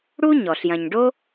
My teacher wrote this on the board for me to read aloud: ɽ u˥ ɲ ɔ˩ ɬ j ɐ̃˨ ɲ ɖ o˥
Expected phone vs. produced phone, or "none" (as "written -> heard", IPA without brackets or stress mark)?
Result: none